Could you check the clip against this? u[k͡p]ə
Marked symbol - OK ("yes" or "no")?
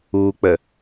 yes